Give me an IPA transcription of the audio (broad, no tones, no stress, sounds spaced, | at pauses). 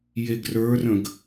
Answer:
j e ɡ r ə˞ r ə̃ ɡ